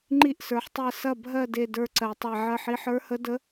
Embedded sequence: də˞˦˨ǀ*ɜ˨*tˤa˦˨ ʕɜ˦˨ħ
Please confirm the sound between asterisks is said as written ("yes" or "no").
yes